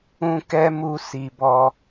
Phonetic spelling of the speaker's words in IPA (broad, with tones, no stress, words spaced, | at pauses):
ũ˦ kɛ˦ mu˧ si˨bɔ˧